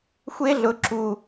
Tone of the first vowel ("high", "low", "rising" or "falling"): high